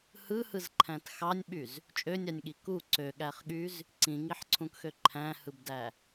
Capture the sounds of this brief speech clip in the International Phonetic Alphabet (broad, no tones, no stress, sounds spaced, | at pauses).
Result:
h ɯ h ɯ z ǃʰ æ̃ t x ɑ nʲ ɓ y z | t͡ʃʼ ø nʲ ɑ nʲ ɠ i k u ǀ ø ɠ æ χ ɠ y z | ǀ ĩ ŋ i ħ ǀʰ ũ k x ø ǃʰ æ̃ h ɯ b d æ